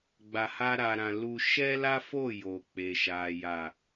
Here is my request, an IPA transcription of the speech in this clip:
ɡ͡b a˧ h a˦ ɾ a˧ ɾ ã˧ l u˧ ʃ ɛ˦ l a˦ f o˦˨ j o˨ k͡p e˨ ʃ a˨ j a˨

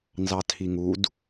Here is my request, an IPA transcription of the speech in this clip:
n z ɑ tʰ i ŋ u d

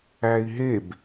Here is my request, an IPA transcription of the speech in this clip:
æ i̯ ɦ e b

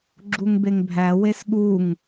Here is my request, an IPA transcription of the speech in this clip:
ɡ͡ǁ u ŋ b e ŋ bʱ æ w e s ɠ u ŋ

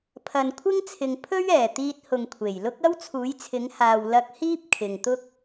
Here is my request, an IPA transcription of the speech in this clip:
pʰ ɐ˨ n kʷʰ ɪ˥ ŋ t͡sʰ ɪ˨ ŋ pʰ ɵ˥ ɥ ɛː˨˩ t̪ iː˧ t̚ h ʊ˨ ŋ kʷʰ e˨˩ j l ʊ˥ k̚ ɐ˥ w t͡sʰ uː˨˥ j t͡sʰ ɪ˨˥ ŋ h aː˨ w l ɐ˧ k̚ h iː˥ p̚ kʰ ɪ˨ ŋ t̪ ʊ˥ k̚

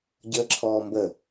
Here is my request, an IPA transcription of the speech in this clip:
ɟ əː ǁʰ ɔː m b ə

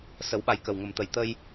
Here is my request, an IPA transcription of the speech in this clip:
s ə˨˩˦ w ɓ a˨˩ j k ə˨˩ w ŋ ə˨˩ m t̪ ə˨˩ j t̪ ə˧ j

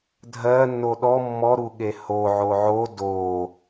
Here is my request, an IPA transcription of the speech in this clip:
dʱ ɜ nː o ɗ ɔ mː ɔ ɾ u ɠ e h o ʕ o ʕ o d o

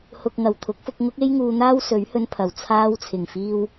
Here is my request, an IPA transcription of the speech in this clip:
h ʊ˨ k̚ ŋ ɐ˨˩ w t̪ʰ ʊ˨˥ k̚ f ʊ˧ k̚ ŋ ʊ˥ k̚ e˥ j ŋ uː˧ n̪ aː˥ w s ɵ˨˥ ɥ h ɵ˧ n pʰ ɐ˨˩ w t͡sʰ aː˧ w t͡sʰ ɪ˨˩ ŋ f iː˧ w

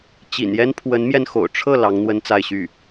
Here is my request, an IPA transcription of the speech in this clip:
t͡ɕ ḭ˨˩ n j ɛ˥ n pʰ w ə˧˥ n m j ɛ˧ n x o̰˨˩ ʊ̯ ʈ͡ʂʰ ɤ˥˩ l ɑ˧˥ ŋ n̪ w ə˥ n t͡s a˥˧ ɪ̯ ɕ y˥˩

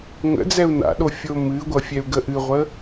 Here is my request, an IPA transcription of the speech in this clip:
ŋ ə̰ d͡z ɛ u̯ n a̰ ɗ o fʲ o m ɨ ɡʷ ʌ fʲ ɛ u̯ ɡ ə ʔ ɨ ʁʷ ə

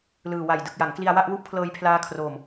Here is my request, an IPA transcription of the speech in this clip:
l ɯː˨˩ w a˨˩ j d ɯ˨˩ k̚ j a˩˦ ŋ k l i˧ a̯ w a˥˩ ʔ w u˥˩ ʔ pʰ l ɤː˧ j pʰ l aː˦˥ kʰ r oː˨˩ m

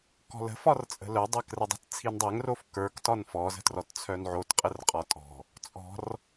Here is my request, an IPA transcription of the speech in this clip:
k ɔ̤ l ə̤ f ɒ r t͡sʼ ə̤ l œ dˤ ɛ k r ə dˤ ə̤ t t͡sʰ i n dˤ ɛ ŋ r o f k ə˞ k t ɒ n f ɔ z ə̤ t r ɔ t t͡sʰ œ n ʕ o t qʼ ə r qʼ ɒ tʼ ɔ̤ | t͡sʼ ɔ̤ r

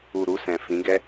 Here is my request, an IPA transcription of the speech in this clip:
u˨ ɾ u˧ s ɛ̃˨ f ĩ˨˦ ɡ ɛ˧

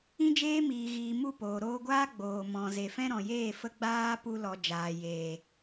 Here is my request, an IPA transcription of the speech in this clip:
ĩ˦ d͡ʒ eː˦ m iː˨ ɣ iː˨ m u˦˨ p oː˨ ɾ oː˧ ɡʷ aː˦ ɡ͡b oː˨ m ɔ̃˨ z e˨ f ɛ̃˦ ɾ ɔ̃˨ j eː˦˨ f ə˧ ɡ͡b aː˧ p u˧ l ɔ˨ d͡ʒ aː˨ j eː˨

